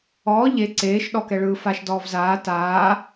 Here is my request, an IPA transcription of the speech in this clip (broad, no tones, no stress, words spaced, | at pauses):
ɔː ʎe ǀeːʃ ɗɔkɛɭɯːfaʃ dɔːvzaː taː